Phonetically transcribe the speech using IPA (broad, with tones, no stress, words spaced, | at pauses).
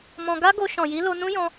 mɔ̃˧ ɡa˦ɡo˧ ʃɔ̃˨ji˨˦lo˧ nũ˦jɔ̃˧